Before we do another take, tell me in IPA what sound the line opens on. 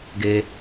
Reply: ɡ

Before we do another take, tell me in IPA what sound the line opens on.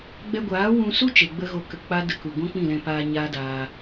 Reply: ɡ͡b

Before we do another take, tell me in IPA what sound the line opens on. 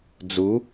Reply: d͡z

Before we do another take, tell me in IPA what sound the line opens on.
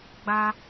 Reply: ɡ͡b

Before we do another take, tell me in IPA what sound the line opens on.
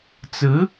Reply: t͡s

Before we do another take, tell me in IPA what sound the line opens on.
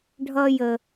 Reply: ɖʱ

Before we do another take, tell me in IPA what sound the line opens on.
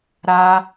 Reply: ɾ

